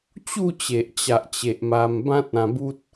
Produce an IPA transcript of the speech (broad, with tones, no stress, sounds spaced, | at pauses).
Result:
t͡ɕ u˥˧ t͡ɕ e˨ ʔ t͡ɕ a˨ ʔ t͡ɕ e˨ ʔ m a˧ m b ã˦ t̚ ã˧ b u˦ t̚